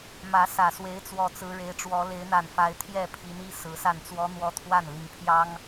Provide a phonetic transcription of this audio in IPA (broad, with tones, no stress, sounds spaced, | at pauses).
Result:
m ä˧˥ s ä˨˩ s w e˧˥ ɪ̯ t͡s w ɔ˨˩ t͡s ɹ̩˧˥ ɻ e˧˥ ɪ̯ ʈ͡ʂ w ɔ˧˥ l e˧˥ ɪ̯ n̪ a˨˩ n f a˧˥ ɪ̯ t̪ʰ j ɛ˥˩ pʰ i˧˥ n i˥ s ɹ̩˧˥ s a˥˩ n t͡s w ɔ˥ n̪ w ɔ˥˧ t̪ʰ w a˥˩ n l i˧˥ ŋ pʰ j ɑ˥ ŋ